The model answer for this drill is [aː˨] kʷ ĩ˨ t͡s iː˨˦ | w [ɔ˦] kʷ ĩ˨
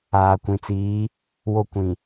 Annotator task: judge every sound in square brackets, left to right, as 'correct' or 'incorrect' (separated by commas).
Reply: correct, incorrect